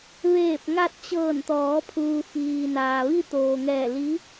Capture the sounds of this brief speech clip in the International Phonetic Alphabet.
ʋ eː˧˩ p̚ ŋ a˧ t̚ t͡ɕ ɤː˧˩ n t̪ ɔː˩˧ pʰ uː˩ f iː˩ n aː˩ ʋ i˧ t̪ oː˩ ŋ ɛː˧˩ l i˧˥

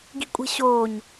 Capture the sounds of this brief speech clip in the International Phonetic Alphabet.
ɡ i̤ kʷʼ e̤ ɕ oː ɲ

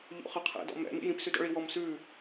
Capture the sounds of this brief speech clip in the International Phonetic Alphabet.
ʎ o̰ χ ʌ qʰ ɛ̰ d ɔ̰ m ɛ̰ m ḭ j ĩ p s ʉ d ɔ̰ ɭ i w ɔ m s ʉ

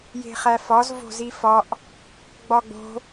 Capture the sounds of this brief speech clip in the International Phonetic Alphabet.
j e̤ χ æ f ɒ z v o̤ z i f ɒ ʔ | ɡ͡b ɒ ɡ͡b o̤

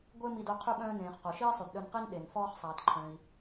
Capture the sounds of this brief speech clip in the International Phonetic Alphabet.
ɡʷ e˥ m i˧ d o˧ qʰ y˧ ɓ œ̃ː˧ n ẽː˩ χ q o˩ ʃ iː˥ sˤ y˩ d ɗ œ˧ n q i˥ n ɗ e˩ n f ɔː˧ χ sˤ aː˩ t ǃʰ œ̃˩ i̯

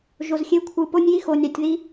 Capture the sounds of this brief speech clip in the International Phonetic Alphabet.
ʒ o˨ z xʲ e˦ kʷʰ ɯ˨ p o˦ nʲ j i˦ x o˨ nʲ ɑ˨ tʲ ð i˦

